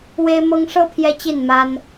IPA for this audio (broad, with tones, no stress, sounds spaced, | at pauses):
w e˦ ɪ̯ m ɤ˦ ŋ ʂ ɤ˦ pʰ j ɛ˦ t͡ɕ i˥˨ n m a˦ n